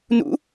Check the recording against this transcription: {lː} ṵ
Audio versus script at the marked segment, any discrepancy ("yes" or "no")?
yes